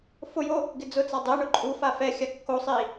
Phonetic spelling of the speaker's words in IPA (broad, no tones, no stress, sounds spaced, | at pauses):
f ʊ j o | ɡ ɪ d͡z ʊ t͡s a dˤ e ɳ ʊ ǃʼ u f a f ɛ xʲ a kː o sˤ i